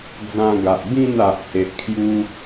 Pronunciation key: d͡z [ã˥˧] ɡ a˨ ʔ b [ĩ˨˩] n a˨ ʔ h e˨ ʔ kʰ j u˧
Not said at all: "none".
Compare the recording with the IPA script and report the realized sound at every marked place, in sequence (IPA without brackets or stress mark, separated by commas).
ã˧, ĩ˥˧